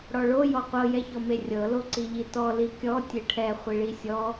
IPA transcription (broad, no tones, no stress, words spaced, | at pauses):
ɽɔɭo jɔqʷɤ jɛçɔmerʲɤ loǀiʎitɔ likʲɔ tʲeʈʰɛ χʷiɭisʲɔ